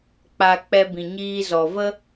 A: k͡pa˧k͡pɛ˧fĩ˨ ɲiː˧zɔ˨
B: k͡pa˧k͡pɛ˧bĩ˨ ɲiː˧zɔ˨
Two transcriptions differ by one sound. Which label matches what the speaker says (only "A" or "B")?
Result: B